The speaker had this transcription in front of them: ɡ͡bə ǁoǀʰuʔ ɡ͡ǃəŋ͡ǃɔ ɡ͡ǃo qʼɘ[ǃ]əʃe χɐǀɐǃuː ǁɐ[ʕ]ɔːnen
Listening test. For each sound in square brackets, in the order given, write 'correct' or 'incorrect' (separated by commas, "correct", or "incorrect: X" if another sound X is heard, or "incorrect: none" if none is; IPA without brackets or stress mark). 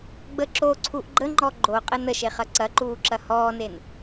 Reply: incorrect: n, incorrect: h